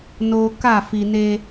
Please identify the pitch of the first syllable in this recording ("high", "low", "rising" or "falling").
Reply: low